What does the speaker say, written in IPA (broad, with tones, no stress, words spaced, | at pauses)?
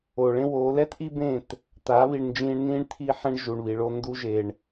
oː˨ɭẽ˦woː˨˦ lɛ˦tʔi˦bẽ˦˨t | t̪a˨˦ βi˨ɳnd͡ʒĩː˧ɳnĩː˦ɳ t̪ʰi˧ħɛ̃˧ɳ ʒu˨ɳβi˨ ɭo˧ ndu˧ ʒe˨ɳ